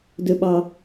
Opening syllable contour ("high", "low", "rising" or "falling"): low